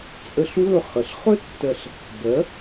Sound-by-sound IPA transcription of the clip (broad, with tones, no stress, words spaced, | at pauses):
t͡sʼə˧ɬwɵ˥˩ χə˩ɬχɵ˥ tːɜ˧ɬ | bɜ˩˥